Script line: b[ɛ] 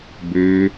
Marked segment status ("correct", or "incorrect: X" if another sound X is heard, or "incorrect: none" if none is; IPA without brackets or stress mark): incorrect: ø